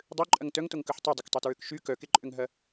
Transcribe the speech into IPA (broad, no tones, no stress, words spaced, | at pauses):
dˤøǃʼɐŋ tœŋtoŋkœħ tˤødˤɐktˤotɹøk ʃy kœkeǃʼʏŋɦɐ